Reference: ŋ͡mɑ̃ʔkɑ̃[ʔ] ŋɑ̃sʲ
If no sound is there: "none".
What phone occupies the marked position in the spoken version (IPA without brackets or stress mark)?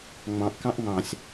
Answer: ʔ